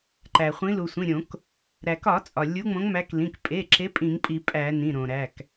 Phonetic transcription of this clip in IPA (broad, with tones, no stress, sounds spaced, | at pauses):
ǃ æ˩ χʷ ĩ˨˦ l u˩ sʷ ĩ˩˧˩ ɾʲ õ˧˩˧ k | ɾ æ˩ k ɒ˧˩˧ t͡sʼ ɒ˩ lʲ u˨˦ ŋ͡m õ˨˦ ŋ m æ˨˦ k l ĩ˩˧˩ k pʼ e˩˧˩ ǁ e˨˦ pʼ ĩ˧˩˧ ŋ pʼ i˧˩˧ pʼ æ˧˩˧ n ĩ˩˧˩ ɾ õ˩ ɾ æ˩˧˩ k